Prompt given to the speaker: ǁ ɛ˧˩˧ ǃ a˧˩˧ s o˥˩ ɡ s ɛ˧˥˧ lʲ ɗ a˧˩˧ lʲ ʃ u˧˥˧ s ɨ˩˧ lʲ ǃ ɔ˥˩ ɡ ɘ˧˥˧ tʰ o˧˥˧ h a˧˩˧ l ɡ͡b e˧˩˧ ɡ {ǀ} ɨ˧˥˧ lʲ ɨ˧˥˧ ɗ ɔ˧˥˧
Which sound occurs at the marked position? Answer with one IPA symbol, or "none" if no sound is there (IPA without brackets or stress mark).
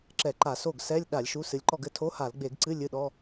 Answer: ǀ